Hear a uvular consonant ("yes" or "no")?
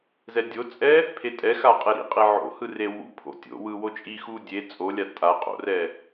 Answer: yes